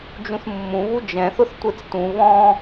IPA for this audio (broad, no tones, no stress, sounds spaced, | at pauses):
d͡ʒ ũ θ mː ũ β u d͡ʒ ɛ̃ θ ʊ θ tʷ e t͡s t ũ β ɔ̃